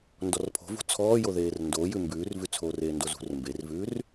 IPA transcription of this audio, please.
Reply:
n d ɔ r pʰ o̤ v ṳ t͡sʰ ɔː j o ð eː r n d oː j ʉ m b ʉː r v ʉ t͡sʰ oː r eː n d o z ṳ r m b e r v ʉː r

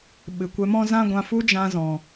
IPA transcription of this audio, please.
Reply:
ɓ ɨ˨ kʷ ɛ˧ m ɔ̃˦ z ã˦ ɡʷ ã˧ f u˦ d͡ʒ ã˧ z ɔ̃˨

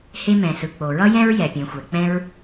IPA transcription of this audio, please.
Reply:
h e˥ m ɛ̃˩ s ɯ˩ k͡p o˩ ɹ ʌ˥ j ɛ̃˥ ɹ j ɛ˩ pʲ ẽ˩ xʷ ɛ˩ k͡p ɛ̃˥ ɹ

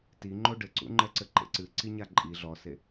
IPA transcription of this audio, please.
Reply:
t i ŋ͡ǃ o ɖ ɘ ǀ ṵ ŋ͡ǃ ɛ ǀ ɘ ǃ ḛ ǀ ɨ ǀ i ɲ a ǃʼ i ɮ ɔ s e

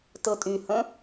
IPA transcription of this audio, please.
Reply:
t ɤ tʼ y h ə̃

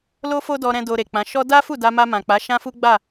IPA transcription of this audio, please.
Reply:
l o˦ f o˦ d ɔ˧ ɾ ɛ̃˧ d o˧ ɾ e˨ k͡p ã˨˦ ʃ ɔ˦ d a˦ f u˦˨ d a˧ m a˧ m ã˨ k͡p a˨˦ ʃ ã˦ f u˦ ɡ͡b a˦˨

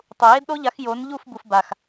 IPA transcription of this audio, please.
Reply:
tˤ u˨ j e˦ d ɗ o˦ ʎ a˨˦ x j o˨˦ n ʎ u˦˨ f b u˨ f b a˨ x

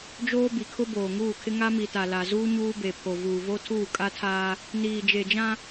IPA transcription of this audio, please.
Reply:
d͡ʒ oː˦ b i˨ kʰ ʊ˦ b oː˨ ŋ uː˦˨ kʰ ɪ˦ ŋ a˦ m i˨ t a˨ l a˨ z uː˦ ɲ uː˦ b e˨ pʰ o˨ v uː˨ v o˦ tʰ uː˦˨ kʼ a˦ tʰ aː˦ | n iː˨ d͡ʒ e˨ d͡ʒ ã˦

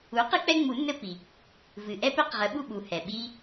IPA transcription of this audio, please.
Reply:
u˩˥ q ɨ˦ k͡p ɛ˦ ŋ͡m u˨˩˦ nː ɘ˦ p i˩ | v ɨ˩ ʔ ɛ˦ p ɘ˨˩˦ q ʁ ə˩˥ ɓ u˥˨ ɓ u˩ h ɛ˩ ɓ i˦

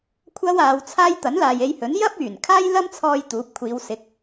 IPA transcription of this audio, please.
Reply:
kʷʰ ɐ˥ w aː˨˧ w t͡sʰ aː˥ j t̪ ɐ˨˥ n l aː˨ j e˧ j h ɵ˨˥ n j ɐ˥ p̚ yː˨˩ n kʰ aː˥ j l ɐ˥ m t͡sʰ ɔː˧ j t̪ uː˨˥ p̚ kʷʰ iː˨˧ w s ɪ˨˥ k̚

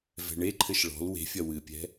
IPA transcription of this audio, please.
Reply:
v ɛ̤ ɳ e ǃʰ ɘ ʃ ɭ ɔ̤ l w e̤ fʲ ɐ w ɨ pʲ ɛ̤

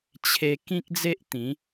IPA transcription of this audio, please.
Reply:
t͡ɕʰ e˧ k ĩ˦ k̚ d͡z e˦ ʔ t̪ ĩ˨˦

